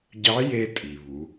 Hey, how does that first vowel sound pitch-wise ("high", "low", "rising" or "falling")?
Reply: rising